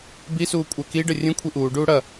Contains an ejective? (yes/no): yes